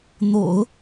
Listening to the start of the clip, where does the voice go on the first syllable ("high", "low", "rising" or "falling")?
low